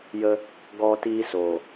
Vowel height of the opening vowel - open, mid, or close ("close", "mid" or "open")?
mid